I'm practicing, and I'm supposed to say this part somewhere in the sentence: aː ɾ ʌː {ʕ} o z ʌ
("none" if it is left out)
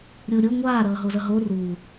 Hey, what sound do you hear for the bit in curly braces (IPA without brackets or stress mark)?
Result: ɦ